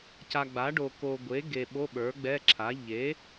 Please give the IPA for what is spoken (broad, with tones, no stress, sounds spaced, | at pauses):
c a˨ ɡ͡b a˩˥ ɖ o˨ k o˨ ɡʷ e˩˥ ɡ e˨ ɓ o˧˥˧ ɓ ə˞˩˥ ɡ͡b ɛ˧˥˧ ǁʰ a˩˥ ʎ e˩˥